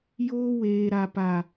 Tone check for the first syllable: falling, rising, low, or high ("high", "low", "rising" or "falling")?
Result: high